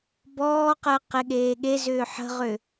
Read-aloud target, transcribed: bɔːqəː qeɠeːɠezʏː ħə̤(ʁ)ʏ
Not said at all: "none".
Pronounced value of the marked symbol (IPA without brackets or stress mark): ʁ